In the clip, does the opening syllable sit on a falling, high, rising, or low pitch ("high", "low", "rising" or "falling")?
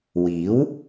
rising